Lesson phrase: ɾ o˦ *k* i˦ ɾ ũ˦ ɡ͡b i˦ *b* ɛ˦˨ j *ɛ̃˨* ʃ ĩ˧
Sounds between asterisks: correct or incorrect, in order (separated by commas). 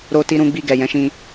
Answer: incorrect, incorrect, incorrect